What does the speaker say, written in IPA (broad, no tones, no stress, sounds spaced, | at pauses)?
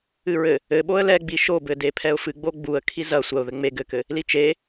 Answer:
ɨ ɹ ɘ | ɘ ɓ o ə̯ l ɛ ɡ͡b i ʃ o b ɘ d e pʰ ɛ ʊ̯ f ɨ ɡ͡b o ɡ͡b u ə̯ kʰ i z ɐ sʷ ɐ ʊ̯ ð ɘ ŋ͡m e ɡ ɘ k ɘ | l i t͡ʃ e